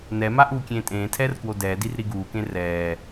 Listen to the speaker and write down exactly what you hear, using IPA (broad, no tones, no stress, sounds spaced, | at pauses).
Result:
n ɛ m a ʔ uː kʲ ẽː tʼ ẽː tʰ ɛː r k w o d ɛː d i r ɾ i ɡ uː k ẽ r ɛː